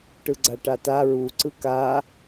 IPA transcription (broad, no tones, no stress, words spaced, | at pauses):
ʈɯɡ͡ǀaʈata ɹu ǀɯka